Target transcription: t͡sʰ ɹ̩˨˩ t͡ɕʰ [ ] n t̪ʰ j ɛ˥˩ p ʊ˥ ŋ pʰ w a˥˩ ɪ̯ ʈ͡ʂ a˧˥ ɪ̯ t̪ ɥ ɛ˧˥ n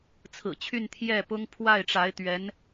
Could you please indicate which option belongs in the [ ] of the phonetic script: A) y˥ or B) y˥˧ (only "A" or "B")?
B